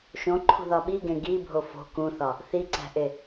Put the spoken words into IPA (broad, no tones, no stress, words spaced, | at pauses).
ʃõǃʰṳðɒ ɓiɡẽ ɡibʱo fo̤ kũθɒ | θiǀæ̤ʔe